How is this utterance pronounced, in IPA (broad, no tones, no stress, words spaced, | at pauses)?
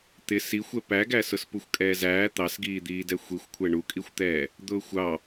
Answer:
t̪ɪ sixʷɛ pæɡæ sʊspuxʷkʼɛːzæː t̪ɑsɡiːd̪iːdɛ xʷixʷkʷʰɛ ɳukʼixʷt̪ɛː | d̪ʊːxʷɑ